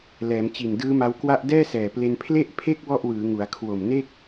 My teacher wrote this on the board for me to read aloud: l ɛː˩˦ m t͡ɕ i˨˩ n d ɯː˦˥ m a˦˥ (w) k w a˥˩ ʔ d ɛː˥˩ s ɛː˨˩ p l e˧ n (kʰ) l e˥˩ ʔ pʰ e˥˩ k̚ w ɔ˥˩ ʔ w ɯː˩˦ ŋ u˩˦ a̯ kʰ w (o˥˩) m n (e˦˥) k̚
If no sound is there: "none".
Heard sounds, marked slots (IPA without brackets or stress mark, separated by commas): w, pʰ, o˨˩, e˥˩